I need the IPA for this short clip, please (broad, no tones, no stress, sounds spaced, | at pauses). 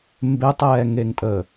m b e tˤ ɛː ŋ e ŋ tʼ ə